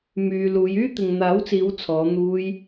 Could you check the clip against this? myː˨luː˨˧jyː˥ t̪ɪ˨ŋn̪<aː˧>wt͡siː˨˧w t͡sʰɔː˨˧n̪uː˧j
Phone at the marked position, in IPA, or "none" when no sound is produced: aː˨˥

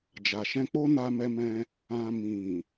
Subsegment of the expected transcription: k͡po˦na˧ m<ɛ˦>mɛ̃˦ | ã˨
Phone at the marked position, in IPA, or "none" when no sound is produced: ɛ˦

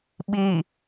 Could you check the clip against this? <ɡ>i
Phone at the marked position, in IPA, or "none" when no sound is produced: ɓ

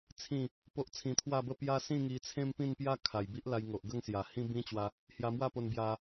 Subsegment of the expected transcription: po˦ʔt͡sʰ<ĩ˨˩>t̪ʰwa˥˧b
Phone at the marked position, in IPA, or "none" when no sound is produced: ĩ˧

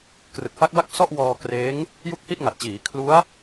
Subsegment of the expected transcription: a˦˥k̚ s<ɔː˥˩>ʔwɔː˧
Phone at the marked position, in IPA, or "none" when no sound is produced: ɔ˥˩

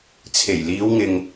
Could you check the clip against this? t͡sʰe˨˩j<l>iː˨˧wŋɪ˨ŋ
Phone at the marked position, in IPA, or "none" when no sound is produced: l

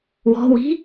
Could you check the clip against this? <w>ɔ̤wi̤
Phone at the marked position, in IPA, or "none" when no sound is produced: w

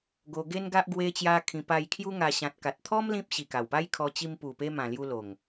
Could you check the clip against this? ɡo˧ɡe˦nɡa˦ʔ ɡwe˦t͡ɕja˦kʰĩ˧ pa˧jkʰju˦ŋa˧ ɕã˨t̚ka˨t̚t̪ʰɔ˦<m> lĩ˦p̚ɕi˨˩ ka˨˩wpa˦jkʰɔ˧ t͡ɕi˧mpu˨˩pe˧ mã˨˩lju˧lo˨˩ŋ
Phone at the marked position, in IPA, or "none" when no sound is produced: m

